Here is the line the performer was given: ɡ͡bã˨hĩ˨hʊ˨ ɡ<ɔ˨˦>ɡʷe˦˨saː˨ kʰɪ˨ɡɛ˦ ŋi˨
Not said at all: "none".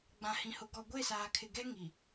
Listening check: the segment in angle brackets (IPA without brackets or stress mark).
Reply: ɔ˨